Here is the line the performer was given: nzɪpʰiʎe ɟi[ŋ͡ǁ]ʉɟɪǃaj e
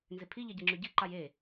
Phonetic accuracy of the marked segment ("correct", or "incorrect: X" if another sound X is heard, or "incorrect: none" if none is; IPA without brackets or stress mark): correct